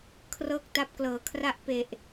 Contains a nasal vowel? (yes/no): no